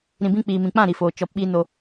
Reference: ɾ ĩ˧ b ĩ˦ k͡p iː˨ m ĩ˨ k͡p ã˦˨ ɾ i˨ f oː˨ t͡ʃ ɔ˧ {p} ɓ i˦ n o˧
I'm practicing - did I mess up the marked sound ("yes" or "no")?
no